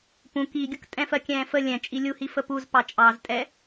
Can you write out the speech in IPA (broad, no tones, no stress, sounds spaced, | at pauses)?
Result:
p ũ k i ɡʲ ʊ k tʼ ɛ̃ f ɜ kʲ ɛ̃ː f ə lʲ ɛ̃ t͡ʃʼ i lʲ u h i f ə p u z p ɑ t͡ʃʼ ɑ z tʼ ɛ